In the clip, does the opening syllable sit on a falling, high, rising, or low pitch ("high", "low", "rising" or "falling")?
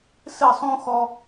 falling